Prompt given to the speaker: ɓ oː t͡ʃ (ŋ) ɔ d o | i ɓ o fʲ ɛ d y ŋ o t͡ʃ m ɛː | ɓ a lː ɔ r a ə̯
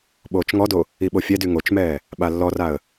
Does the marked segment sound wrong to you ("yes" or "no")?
no